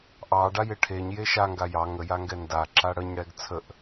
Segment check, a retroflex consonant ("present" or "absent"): present